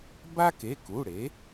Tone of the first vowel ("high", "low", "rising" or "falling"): high